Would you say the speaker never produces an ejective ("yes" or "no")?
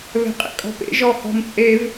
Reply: no